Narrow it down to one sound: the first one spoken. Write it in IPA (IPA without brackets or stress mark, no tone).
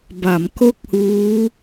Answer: b